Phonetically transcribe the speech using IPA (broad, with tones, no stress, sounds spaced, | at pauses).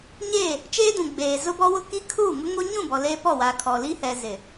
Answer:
ɲ eː˦˨ | t͡ʃ eː˦ d ũ˨ ɡ͡b eː˨ z ʊ˦ b ɔ˦ w ʊ˦ k i˦ kʰ uː˦˨ ŋ ʊ˦ ŋ o˦ ɲ ũ˦˨ b ɔ˨ l eː˦ p ɔ˦˨ w aː˨ kʰ ɔ˨ l i˦ h ɛ˨ z ɪ˨